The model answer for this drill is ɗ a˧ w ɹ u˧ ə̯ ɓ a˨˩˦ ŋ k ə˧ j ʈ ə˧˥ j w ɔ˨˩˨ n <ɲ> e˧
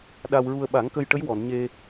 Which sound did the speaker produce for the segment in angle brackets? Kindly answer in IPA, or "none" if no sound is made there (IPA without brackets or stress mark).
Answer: ɲ